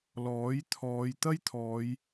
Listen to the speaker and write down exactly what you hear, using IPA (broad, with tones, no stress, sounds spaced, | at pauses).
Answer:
l ɔː˨˥ j t̪ʰ ɔː˨˧ j t̪ ɐ˥ j t̪ʰ ɔː˨˧ j